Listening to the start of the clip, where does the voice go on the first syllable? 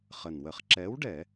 low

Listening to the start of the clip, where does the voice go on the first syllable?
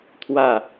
falling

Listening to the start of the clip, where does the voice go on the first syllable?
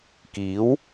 rising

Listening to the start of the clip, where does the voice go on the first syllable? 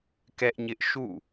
high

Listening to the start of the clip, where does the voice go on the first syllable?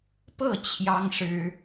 falling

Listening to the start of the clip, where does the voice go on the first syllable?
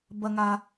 high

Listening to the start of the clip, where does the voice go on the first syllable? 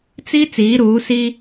high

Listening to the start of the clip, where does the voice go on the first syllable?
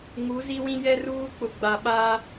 rising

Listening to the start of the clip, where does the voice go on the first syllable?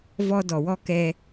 high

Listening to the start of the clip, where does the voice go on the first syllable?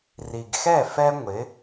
low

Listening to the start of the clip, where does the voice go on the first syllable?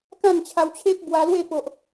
falling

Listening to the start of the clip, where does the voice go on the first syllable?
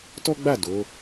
high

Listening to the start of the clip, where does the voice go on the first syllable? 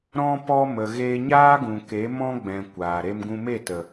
high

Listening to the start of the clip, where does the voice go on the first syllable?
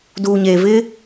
low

